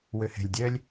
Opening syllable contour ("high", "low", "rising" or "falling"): low